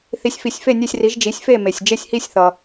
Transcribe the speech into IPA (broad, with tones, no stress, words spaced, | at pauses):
θi˩˥sʲ fi˩sʲfe˥˩ nʲe˥˩sʲri˩˥ʒ d͡ʒi˩˥sʲfe˥˩me˩sʲ d͡ʒe˥˩sʲhi˥˩sʲ θʌ˩